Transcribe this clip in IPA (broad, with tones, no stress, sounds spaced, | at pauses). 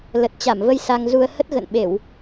l ə˨˩ t̚ t͡ɕ a˧˩ m v ə˧ j s a˧ ŋ z u˧ ə̯ h ə˦˥ t̚ ɣ ə̰˧˨ n ɓ e˧˩˨ w